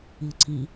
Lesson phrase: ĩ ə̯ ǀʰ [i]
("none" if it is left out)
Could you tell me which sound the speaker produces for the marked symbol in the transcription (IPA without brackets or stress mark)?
ĩ